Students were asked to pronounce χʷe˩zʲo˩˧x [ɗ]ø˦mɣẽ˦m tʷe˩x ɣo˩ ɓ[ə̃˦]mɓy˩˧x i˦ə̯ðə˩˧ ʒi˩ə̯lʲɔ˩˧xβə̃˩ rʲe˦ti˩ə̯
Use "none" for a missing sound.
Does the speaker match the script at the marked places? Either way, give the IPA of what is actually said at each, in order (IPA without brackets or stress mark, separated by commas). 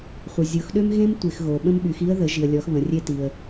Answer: ɗ, ə̃˦